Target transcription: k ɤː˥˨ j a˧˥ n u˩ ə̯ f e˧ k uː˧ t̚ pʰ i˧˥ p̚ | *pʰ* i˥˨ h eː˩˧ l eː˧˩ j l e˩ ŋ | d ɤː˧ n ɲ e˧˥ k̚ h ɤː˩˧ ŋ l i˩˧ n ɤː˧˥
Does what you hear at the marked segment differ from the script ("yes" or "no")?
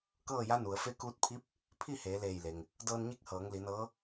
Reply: no